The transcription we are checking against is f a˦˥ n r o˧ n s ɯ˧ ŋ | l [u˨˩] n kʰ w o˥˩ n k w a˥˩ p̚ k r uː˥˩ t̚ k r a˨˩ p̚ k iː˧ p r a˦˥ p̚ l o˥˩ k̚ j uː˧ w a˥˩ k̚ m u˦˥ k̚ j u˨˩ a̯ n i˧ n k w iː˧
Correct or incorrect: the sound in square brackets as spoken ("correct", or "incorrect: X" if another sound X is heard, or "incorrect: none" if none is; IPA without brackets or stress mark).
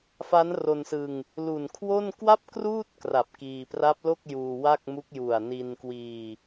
correct